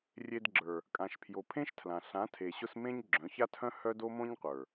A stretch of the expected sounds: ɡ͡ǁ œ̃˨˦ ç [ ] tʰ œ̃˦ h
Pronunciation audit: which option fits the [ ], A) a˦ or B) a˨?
A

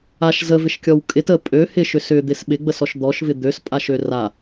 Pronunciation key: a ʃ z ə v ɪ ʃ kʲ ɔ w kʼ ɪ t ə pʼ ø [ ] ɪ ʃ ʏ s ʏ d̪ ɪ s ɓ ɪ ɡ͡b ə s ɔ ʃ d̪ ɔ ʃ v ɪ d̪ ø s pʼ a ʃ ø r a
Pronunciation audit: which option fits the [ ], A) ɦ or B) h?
B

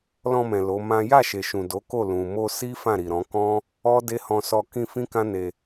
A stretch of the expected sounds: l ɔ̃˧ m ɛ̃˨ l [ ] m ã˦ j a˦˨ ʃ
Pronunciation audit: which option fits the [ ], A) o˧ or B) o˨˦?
B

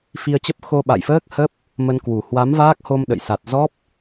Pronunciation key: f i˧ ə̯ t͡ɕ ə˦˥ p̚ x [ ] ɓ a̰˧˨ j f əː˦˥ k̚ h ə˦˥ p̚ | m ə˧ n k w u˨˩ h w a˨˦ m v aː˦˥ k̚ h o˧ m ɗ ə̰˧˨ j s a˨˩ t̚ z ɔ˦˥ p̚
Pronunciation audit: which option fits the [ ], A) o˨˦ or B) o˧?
B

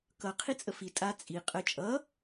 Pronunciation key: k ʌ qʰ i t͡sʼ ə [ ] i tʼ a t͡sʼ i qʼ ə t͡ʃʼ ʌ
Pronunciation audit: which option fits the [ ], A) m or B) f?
B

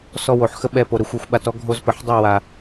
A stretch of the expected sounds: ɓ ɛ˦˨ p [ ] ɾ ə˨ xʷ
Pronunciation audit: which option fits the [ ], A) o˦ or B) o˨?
B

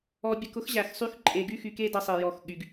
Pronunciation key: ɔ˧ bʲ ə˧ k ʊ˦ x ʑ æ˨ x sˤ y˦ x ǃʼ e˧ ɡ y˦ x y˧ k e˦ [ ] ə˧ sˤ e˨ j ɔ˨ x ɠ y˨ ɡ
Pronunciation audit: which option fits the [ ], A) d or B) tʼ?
A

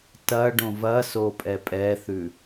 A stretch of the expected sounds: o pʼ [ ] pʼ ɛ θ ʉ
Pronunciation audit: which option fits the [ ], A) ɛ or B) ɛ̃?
A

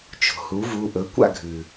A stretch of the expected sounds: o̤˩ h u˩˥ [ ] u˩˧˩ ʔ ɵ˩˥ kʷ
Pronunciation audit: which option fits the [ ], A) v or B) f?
A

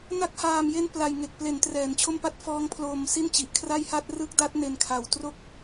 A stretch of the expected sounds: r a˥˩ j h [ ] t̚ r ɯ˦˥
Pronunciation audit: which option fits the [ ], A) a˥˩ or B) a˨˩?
A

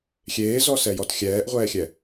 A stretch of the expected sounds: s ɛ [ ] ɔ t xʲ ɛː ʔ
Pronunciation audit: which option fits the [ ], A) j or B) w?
A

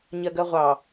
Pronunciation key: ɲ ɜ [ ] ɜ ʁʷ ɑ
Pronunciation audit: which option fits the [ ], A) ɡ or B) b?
A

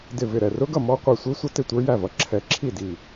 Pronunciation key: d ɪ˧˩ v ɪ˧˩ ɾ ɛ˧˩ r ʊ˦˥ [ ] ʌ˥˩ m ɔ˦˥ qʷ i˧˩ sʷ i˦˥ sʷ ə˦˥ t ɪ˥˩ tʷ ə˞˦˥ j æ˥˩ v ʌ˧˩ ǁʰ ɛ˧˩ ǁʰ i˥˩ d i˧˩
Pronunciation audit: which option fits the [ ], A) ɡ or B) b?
A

